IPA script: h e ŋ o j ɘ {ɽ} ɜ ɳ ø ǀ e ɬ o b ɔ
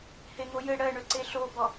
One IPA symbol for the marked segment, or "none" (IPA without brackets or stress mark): ɽ